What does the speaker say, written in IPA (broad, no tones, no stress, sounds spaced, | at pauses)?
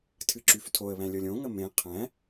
tʰ ɨ ǁ y f tʰ o ə̯ β æ̃ lʲ ɤ lʲ õ ŋ ə m ẽ qʰ æ̃